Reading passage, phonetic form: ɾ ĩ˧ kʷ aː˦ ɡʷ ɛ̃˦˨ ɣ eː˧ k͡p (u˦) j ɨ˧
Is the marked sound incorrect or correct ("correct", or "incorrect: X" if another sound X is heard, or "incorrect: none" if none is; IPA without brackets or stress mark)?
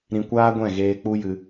correct